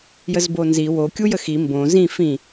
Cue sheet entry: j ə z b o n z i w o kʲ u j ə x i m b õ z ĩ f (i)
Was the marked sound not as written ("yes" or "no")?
yes